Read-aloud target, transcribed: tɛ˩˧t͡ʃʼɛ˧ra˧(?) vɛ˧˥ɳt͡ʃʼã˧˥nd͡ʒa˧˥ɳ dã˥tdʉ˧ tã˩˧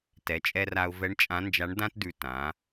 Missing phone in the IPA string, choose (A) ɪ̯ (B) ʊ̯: B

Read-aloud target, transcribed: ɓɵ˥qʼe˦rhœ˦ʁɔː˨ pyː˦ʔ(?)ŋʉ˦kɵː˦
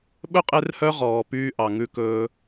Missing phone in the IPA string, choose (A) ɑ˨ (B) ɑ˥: A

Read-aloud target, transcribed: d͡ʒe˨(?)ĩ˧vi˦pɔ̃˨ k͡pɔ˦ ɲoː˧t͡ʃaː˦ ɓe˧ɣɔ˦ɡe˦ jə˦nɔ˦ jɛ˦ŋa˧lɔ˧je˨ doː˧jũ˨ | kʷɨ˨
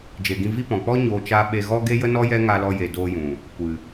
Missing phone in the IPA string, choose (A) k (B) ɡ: B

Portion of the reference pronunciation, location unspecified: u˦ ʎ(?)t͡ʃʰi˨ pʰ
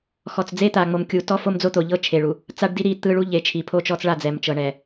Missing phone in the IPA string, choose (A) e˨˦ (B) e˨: A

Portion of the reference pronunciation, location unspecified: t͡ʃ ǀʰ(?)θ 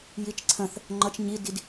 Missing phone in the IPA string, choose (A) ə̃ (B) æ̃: A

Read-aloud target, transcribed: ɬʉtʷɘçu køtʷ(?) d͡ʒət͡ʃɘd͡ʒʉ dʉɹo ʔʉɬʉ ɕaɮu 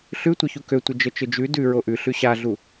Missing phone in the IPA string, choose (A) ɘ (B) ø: A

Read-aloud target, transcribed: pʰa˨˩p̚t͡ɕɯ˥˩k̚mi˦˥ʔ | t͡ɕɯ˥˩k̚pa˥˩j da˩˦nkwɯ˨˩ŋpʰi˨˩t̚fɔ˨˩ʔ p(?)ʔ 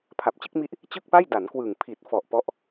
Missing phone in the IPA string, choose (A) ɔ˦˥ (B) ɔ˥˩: B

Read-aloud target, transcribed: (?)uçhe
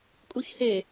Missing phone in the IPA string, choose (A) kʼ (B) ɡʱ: A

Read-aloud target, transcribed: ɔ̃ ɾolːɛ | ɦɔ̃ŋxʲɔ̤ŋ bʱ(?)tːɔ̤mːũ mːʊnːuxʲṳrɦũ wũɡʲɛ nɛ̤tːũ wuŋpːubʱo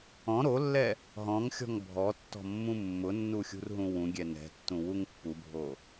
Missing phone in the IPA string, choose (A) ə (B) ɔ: B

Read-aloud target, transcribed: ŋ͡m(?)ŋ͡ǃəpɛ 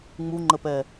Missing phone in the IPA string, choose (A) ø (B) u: B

